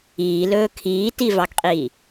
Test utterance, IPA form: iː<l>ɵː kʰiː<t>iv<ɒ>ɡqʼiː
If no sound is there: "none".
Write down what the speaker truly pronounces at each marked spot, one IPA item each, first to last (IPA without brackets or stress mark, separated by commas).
l, t, ɑ